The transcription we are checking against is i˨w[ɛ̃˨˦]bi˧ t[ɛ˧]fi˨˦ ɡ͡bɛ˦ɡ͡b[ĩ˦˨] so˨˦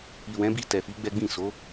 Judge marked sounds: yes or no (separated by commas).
yes, no, yes